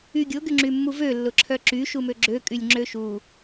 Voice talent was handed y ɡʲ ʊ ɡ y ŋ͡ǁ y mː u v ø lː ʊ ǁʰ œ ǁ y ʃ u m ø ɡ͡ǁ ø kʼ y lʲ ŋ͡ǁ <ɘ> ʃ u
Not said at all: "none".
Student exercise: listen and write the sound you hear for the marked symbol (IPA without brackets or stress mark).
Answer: ø